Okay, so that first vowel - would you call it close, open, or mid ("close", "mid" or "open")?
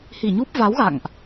close